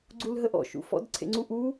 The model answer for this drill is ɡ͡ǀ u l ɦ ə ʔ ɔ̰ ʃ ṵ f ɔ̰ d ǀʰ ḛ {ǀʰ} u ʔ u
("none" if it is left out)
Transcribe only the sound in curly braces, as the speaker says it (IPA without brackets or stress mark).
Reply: ŋ͡ǀ